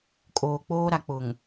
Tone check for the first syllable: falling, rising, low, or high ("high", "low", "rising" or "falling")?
low